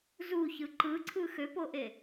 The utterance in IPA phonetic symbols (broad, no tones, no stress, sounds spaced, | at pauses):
z u ç ɯ ǃ ɯ ǀʰ ɯ x ø p o ʔ e